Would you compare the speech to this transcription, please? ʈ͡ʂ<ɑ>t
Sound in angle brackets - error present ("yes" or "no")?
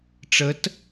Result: yes